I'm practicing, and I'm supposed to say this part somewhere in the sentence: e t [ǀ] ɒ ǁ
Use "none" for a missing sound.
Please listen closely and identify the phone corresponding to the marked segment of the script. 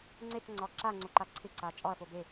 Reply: ŋ͡ǀ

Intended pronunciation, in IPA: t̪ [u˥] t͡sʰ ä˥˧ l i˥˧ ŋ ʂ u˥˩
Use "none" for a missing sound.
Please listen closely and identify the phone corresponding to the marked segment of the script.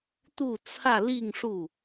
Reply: u˥˧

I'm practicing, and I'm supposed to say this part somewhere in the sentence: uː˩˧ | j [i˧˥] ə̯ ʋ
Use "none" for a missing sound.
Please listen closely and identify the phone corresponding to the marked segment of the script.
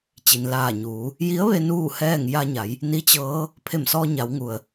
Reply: i˧˥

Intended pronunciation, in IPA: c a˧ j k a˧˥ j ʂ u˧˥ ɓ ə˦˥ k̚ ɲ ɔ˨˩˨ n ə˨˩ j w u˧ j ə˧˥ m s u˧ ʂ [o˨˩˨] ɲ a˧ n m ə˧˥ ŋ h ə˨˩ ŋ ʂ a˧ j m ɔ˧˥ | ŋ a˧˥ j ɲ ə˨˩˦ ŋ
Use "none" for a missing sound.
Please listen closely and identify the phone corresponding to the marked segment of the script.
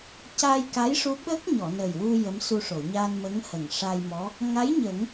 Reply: o˨˩˨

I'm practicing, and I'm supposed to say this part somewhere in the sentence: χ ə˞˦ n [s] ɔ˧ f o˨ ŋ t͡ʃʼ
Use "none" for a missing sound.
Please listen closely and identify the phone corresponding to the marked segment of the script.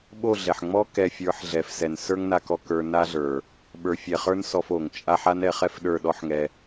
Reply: s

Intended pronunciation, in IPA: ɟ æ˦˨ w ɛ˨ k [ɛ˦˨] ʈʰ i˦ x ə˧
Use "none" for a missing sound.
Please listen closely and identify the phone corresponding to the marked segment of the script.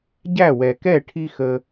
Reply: ɛ˦˨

